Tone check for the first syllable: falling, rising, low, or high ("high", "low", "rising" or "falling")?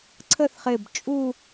falling